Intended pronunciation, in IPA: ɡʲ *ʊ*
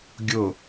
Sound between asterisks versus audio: correct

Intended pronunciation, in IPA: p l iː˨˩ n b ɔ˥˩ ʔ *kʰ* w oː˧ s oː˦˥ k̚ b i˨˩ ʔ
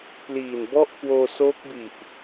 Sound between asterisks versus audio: incorrect: k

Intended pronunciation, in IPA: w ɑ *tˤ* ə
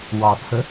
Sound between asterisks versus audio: incorrect: tʰ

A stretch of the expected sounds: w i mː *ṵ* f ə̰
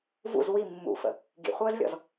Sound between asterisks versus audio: correct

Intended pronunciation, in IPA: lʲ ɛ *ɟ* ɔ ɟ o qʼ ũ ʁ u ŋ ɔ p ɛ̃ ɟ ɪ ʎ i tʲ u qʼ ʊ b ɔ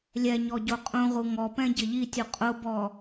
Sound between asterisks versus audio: incorrect: ɲ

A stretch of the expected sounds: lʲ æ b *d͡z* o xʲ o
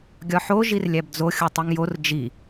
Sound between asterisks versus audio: correct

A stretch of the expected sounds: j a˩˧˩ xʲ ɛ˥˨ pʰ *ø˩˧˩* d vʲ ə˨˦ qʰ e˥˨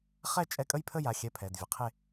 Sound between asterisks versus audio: incorrect: ɛ˩˧˩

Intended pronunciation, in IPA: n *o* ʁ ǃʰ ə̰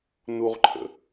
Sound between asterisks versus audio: incorrect: u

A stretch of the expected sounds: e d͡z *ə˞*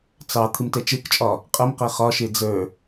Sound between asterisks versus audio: correct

